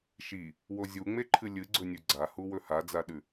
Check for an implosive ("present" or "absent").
present